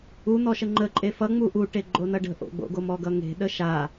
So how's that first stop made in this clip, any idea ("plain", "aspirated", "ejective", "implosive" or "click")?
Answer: click